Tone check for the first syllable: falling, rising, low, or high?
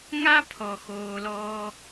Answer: high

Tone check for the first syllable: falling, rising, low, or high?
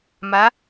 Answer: rising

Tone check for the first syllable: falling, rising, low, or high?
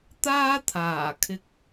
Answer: high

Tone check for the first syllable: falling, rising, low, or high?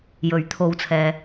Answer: rising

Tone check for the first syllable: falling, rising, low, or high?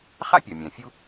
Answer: high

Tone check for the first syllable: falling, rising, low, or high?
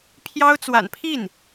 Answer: high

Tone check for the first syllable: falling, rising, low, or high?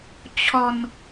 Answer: low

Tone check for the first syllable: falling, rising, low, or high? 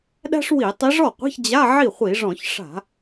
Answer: high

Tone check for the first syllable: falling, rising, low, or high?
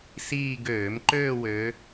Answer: falling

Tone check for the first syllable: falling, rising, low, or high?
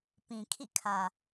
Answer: low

